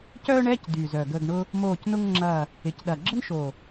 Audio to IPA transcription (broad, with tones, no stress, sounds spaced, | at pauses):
c œː˥ ɳ ɛ˧˥˧ c d y˨˩ z œ˨˩ ɡ ə˦˨ ɡ ɳ ʊ˥ | m oː˦˨ c n ʊ˥ ŋ ŋ͡ǁ ɐ˦˨ | ɪ˨˩ c ɗ ɐ˨˩ ɡ͡ǁ ə˥ n ʃ o˨˩